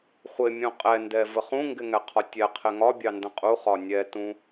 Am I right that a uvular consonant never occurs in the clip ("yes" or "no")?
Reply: no